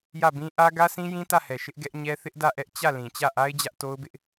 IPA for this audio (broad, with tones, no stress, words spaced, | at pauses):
jä˦˨bĩ˦ ʔä˦ ɡä˦sĩ˦jĩ˦ tä˦˨hɛ˨ ʃɪ˦ʔɡɛ˦ʔɲɛ˦ θɪ˦ʔdä˦˨ ʔɛ˦ʔ t͡ɕä˦˨lĩ˨ t͡ɕä˦˨ʔa˦ɪ̯ d͡ʑä˦ʔto˦ʊ̯bɪ˦ʔ